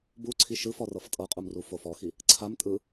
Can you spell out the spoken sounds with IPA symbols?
buǀʰi ʃɯfɔrɤf tʼɤqʼumru fofɔxi | ǀʰam tʼɯ

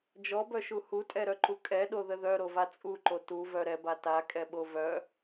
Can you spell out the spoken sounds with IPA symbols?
d͡ʒɔbœʃu hutʼɛɾœǃu kʼɛɗoðə ðœɾova t͡sʼuǃo tuvœ ɾɛba takʼɛɓo vœ

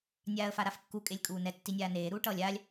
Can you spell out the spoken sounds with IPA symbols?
nʲaːə̯faɾafkːu kʼelʲkʼuːnɛ tːinʲaːneː ɾuːʈʌːlʲaːlʲ

